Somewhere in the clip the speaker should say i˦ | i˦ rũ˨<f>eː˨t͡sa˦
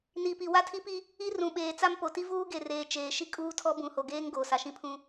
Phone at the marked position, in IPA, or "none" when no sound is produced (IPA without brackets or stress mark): ɓ